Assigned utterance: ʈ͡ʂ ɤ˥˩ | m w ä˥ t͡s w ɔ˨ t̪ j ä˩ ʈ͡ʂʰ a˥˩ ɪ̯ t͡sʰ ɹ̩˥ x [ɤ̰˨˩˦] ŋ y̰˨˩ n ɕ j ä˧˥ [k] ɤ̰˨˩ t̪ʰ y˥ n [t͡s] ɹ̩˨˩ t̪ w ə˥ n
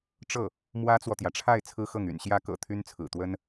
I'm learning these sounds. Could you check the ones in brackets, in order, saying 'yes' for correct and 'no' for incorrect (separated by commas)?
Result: no, yes, no